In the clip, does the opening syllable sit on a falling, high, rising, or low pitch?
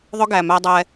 high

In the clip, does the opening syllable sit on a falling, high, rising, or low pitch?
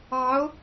rising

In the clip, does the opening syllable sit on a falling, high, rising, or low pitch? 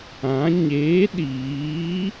rising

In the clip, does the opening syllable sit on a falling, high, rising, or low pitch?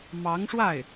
rising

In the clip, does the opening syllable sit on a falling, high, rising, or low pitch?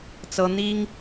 high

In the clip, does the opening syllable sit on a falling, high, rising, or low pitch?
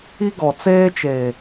high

